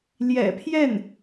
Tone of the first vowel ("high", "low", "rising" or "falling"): low